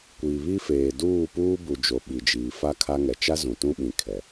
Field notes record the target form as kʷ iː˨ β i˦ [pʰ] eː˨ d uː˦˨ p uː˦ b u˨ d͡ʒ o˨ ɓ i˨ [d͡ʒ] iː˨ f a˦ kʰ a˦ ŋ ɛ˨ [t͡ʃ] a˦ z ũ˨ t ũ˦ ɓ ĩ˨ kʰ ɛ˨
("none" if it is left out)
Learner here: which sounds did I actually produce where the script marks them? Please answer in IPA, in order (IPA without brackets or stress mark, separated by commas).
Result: f, d͡ʒ, t͡ʃ